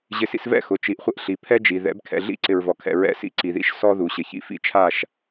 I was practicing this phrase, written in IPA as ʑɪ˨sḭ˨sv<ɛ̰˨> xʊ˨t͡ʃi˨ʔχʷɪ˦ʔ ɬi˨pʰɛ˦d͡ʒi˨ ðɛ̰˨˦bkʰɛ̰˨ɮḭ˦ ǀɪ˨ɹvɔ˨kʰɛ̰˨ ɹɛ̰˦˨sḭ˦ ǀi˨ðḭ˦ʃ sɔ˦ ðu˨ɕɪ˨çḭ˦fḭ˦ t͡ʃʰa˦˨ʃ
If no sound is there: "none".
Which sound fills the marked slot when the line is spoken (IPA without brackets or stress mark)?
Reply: ɛ̰˦˨